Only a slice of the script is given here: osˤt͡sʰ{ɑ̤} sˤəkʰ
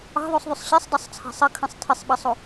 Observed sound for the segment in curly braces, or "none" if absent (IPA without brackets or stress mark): ɑ̤